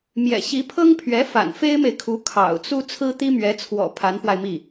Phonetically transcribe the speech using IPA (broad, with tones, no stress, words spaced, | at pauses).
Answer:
mjɛ̰˨˩ɕi˧˥pʰɤ˥ŋpʰɥɛ˧˥ fa̰˨˩nfe˥ɪ̯me˨ɪ̯kʰu˧˥ kʰɑ̰˨˩ʊ̯t͡su˥ t͡sʰɹ̩˥t̪i˥mɥɛ˧˥t͡sʰwɔ̰˨˩ pʰa˧˥nfwa˧ɪ̯mi˥˩